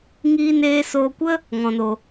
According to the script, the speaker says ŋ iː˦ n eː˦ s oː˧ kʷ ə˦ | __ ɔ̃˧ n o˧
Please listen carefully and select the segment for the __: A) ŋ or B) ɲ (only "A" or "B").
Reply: A